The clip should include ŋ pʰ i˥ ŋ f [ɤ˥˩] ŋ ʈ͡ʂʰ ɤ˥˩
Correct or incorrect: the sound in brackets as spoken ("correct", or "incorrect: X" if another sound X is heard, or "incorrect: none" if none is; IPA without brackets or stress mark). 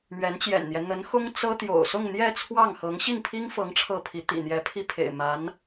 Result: incorrect: ɤ˧˥